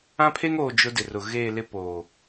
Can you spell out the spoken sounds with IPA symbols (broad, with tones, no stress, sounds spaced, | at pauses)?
ã˦ pʰ e˦ ŋ oː˨ d͡ʒ ʊ˦ d ɪ˨ r ʊ˨ ɣ eː˦˨ l ɪ˦ p oː˨